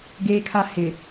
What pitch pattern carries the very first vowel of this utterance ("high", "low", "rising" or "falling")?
high